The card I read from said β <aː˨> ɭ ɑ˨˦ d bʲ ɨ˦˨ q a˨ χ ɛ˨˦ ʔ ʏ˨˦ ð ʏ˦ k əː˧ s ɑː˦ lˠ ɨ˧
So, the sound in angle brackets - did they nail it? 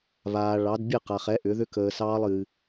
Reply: yes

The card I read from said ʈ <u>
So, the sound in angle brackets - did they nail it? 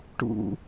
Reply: no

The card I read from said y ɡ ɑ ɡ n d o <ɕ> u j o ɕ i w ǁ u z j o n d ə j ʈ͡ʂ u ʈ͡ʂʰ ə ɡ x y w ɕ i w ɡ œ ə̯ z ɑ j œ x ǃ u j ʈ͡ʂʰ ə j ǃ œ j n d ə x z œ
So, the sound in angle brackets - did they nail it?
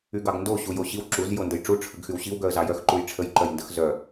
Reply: yes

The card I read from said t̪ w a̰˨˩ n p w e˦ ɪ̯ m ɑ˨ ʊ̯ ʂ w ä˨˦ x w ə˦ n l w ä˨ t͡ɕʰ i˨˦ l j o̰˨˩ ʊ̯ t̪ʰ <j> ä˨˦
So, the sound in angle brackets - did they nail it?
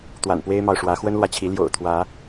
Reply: no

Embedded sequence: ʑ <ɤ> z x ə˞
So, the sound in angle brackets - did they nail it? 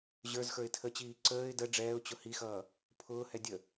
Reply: no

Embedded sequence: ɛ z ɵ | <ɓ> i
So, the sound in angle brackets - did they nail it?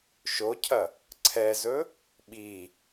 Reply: yes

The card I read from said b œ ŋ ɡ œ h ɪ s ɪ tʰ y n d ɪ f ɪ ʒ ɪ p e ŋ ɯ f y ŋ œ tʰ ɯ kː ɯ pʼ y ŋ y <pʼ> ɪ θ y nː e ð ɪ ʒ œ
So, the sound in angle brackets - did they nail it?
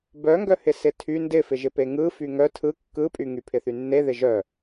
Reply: no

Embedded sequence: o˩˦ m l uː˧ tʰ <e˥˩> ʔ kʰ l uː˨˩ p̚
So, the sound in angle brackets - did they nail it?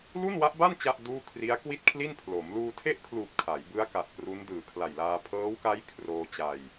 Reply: yes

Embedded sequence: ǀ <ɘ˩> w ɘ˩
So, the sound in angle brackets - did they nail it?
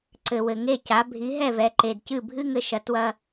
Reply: yes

